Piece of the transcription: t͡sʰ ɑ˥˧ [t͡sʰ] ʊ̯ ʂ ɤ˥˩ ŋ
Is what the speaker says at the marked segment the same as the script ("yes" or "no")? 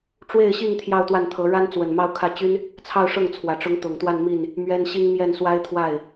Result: no